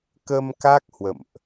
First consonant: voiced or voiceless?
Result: voiceless